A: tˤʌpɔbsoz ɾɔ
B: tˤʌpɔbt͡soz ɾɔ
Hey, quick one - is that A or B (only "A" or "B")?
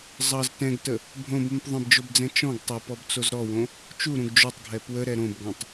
B